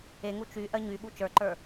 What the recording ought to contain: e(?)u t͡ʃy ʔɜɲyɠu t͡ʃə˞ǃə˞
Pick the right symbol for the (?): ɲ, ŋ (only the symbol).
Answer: ŋ